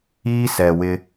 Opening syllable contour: high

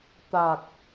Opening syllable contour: low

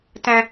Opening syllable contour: high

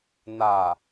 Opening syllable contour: low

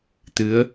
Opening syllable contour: rising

